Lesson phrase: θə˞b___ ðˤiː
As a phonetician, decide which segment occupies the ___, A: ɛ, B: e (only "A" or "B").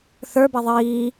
A